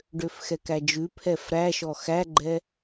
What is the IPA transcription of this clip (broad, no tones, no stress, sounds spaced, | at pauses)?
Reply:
ɖ ø f x ɛ k æ d͡ʒ ʉ pʰ ɛ f ɾ æ ʃ ɔ x æ ɡ͡ǃ ɛ